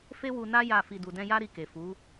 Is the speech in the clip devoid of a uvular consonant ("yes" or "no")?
yes